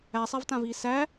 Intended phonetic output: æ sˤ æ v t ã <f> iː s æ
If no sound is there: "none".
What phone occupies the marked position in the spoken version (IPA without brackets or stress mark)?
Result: v